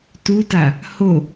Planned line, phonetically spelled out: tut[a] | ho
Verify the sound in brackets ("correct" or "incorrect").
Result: correct